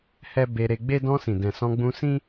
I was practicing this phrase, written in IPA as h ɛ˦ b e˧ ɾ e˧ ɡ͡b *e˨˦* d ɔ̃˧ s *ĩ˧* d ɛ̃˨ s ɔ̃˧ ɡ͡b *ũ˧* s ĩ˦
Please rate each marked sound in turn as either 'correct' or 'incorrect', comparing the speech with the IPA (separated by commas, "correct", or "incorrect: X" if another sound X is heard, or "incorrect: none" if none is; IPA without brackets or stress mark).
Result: incorrect: e˦, incorrect: ĩ˨, correct